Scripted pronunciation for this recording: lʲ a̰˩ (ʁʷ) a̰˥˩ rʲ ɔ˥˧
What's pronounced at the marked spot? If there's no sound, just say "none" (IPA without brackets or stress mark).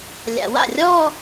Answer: w